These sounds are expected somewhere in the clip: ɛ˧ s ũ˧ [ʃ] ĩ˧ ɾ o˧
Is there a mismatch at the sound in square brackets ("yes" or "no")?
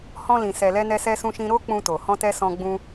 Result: no